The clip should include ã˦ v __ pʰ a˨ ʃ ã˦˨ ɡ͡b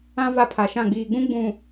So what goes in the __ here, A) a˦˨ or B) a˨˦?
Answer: A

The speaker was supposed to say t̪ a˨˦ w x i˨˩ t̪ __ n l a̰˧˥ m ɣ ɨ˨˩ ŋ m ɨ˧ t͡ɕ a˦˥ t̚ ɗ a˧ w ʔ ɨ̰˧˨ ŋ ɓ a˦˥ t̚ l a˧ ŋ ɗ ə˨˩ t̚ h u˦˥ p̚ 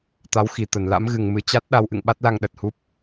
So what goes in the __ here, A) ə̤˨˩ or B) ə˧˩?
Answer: B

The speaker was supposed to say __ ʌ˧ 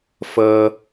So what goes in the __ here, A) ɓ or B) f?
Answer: B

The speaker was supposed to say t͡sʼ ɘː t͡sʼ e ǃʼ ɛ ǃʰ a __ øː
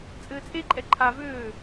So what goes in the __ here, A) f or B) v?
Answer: B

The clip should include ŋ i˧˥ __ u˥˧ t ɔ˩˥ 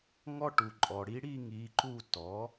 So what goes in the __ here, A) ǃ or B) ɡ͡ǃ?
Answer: A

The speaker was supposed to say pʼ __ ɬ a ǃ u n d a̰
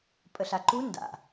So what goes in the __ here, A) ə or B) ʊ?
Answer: A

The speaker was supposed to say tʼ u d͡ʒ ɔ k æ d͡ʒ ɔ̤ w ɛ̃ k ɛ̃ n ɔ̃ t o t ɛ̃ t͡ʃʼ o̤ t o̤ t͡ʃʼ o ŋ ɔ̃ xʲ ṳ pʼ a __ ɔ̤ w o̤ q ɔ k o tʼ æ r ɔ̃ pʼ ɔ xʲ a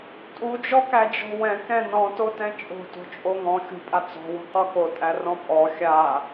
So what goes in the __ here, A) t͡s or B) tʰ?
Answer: A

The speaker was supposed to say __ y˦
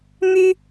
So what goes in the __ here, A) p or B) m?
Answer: B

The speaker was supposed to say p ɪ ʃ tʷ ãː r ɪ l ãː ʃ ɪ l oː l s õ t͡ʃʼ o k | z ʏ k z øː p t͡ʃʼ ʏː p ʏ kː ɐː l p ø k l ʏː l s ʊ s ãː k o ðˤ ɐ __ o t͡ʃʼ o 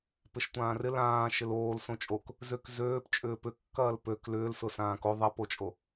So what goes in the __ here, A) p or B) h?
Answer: A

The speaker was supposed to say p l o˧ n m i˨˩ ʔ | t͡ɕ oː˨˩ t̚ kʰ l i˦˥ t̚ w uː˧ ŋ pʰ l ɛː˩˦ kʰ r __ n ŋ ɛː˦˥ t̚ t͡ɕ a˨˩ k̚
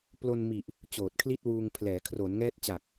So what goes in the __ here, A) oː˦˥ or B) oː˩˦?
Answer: B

